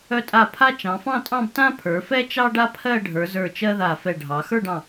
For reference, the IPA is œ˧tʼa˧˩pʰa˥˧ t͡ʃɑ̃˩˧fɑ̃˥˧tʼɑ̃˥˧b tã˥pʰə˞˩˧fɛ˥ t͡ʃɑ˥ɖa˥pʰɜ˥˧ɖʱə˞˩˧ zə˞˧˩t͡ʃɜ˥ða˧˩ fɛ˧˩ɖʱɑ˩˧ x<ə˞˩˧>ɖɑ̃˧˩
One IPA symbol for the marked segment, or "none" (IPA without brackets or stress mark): ə˞˥˧